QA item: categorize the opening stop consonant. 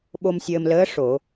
implosive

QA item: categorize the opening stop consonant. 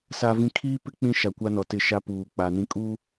aspirated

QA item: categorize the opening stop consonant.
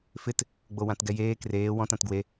plain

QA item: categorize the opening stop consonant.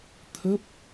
aspirated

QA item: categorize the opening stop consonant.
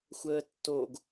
plain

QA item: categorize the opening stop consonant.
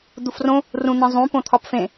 plain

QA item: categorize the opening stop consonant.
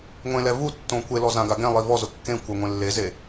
plain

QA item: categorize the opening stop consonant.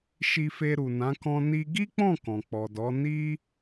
plain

